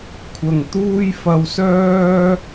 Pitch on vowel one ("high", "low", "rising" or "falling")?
low